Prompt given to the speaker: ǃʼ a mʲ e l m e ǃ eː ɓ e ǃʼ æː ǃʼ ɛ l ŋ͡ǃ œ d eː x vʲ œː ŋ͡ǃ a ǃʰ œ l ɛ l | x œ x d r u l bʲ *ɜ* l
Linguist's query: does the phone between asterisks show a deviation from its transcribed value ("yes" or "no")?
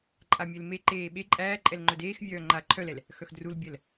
no